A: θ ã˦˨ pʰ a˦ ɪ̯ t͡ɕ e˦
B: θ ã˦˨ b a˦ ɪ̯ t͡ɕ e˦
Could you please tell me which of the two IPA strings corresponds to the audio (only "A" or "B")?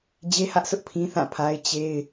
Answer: A